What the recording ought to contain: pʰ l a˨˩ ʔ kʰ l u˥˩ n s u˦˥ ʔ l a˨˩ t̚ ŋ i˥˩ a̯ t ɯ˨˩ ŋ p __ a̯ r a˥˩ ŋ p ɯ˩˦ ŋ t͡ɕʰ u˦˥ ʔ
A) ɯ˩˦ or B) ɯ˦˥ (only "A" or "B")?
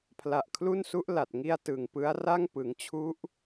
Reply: B